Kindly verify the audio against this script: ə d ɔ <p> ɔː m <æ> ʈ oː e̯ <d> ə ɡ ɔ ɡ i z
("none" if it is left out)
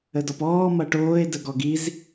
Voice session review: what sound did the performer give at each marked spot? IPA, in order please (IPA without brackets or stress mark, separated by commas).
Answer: p, ɐ, d